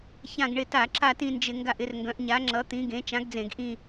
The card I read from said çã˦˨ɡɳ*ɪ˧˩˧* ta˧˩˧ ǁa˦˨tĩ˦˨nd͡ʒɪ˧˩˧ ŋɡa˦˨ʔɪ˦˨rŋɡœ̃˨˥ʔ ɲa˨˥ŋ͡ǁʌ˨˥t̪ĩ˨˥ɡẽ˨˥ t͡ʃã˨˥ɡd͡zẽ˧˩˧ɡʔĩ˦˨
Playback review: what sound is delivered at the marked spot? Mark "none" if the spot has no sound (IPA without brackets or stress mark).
ɪ˦˨